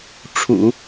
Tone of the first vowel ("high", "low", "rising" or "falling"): low